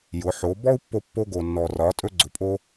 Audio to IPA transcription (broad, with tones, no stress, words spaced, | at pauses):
jʊ˩˧ ħo˩˧bɔ˥u̯pːo˧pːo˧ ɡo˩nːɔ˩rɒ˩˧ tʼɵ˧ɡ͡ǀʊ˩pʼo˧